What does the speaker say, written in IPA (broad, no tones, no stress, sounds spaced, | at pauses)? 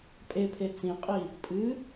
pʼ e pʰ e t͡s ĩ qʼ i | pʼ ɨ